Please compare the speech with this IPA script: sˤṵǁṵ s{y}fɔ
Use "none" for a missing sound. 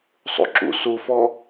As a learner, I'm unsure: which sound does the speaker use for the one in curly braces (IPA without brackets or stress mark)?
u